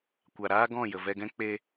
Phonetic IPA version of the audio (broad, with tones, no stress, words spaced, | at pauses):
kʷa˨ɾaː˦ ɡɔ̃˦˨ jə˨vɛ˧ɡɛ̃˦ k͡pe˧